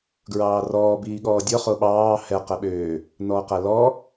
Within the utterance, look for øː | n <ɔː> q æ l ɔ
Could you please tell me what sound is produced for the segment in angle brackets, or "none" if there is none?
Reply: ɔː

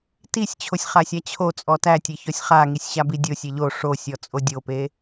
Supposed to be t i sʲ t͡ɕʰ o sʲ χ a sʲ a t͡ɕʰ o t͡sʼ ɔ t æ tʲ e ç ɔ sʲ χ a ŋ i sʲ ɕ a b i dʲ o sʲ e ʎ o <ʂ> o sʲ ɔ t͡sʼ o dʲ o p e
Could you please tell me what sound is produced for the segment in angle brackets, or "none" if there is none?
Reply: ʂ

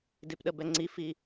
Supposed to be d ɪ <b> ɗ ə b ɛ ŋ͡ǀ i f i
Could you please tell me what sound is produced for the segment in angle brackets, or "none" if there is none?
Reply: p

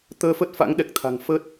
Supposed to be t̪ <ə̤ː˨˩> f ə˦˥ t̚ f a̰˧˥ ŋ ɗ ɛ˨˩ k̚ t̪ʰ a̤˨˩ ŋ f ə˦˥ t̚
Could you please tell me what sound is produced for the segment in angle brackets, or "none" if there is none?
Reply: əː˧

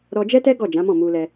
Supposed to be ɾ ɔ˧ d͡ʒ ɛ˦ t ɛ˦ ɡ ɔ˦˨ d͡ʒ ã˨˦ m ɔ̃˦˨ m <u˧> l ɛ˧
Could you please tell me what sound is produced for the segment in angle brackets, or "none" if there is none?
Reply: u˧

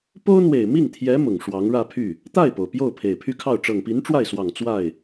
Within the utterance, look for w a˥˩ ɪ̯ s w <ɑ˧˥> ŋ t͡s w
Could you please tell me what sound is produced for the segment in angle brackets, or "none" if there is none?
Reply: ɑ˨˩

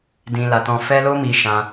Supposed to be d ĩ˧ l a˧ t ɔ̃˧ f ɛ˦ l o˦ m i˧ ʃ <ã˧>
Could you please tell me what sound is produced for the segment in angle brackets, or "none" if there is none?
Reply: ã˧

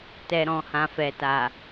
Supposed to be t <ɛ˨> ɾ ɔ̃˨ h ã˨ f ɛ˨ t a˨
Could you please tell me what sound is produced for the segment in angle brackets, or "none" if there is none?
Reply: ɛ˨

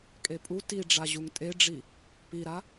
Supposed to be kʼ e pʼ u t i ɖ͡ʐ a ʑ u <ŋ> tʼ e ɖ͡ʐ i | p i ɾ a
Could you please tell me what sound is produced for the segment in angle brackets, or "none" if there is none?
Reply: ŋ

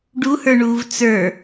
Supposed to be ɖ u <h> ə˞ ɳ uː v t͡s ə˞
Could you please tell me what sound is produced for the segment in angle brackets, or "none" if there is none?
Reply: h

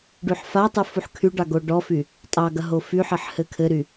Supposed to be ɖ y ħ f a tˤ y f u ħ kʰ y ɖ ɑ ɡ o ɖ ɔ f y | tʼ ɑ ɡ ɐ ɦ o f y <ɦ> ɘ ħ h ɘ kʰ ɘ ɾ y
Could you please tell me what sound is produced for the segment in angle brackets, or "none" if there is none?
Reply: ħ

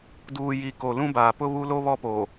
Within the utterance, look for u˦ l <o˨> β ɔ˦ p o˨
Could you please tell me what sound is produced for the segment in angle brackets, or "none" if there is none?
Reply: o˦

